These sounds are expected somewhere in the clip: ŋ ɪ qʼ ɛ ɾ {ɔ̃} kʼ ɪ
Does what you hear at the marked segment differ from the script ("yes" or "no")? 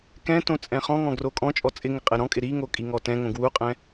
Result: no